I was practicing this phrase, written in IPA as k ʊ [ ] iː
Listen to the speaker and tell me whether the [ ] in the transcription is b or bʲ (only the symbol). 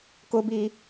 b